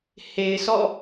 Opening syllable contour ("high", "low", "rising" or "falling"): low